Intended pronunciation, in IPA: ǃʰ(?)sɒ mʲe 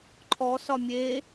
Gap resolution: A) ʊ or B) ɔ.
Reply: B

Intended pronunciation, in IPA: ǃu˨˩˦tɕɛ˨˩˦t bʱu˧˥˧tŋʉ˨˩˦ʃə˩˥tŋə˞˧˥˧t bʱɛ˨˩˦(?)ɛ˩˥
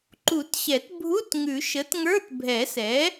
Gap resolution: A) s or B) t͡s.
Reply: A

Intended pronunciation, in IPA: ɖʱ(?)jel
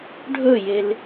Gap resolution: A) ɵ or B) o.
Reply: A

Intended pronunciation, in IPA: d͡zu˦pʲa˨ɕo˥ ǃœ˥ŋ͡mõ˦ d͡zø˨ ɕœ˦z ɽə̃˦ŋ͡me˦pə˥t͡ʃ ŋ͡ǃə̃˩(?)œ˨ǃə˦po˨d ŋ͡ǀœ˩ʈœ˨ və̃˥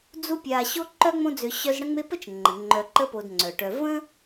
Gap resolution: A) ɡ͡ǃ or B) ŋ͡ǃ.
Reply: B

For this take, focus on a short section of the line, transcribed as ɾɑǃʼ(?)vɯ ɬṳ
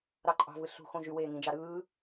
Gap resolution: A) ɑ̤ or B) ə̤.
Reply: A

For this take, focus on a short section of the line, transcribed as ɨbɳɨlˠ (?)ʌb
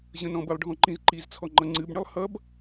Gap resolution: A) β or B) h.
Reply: B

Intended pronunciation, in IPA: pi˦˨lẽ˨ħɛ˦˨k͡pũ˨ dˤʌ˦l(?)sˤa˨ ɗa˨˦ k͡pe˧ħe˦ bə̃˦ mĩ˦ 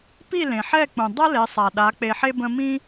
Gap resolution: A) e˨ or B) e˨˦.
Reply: B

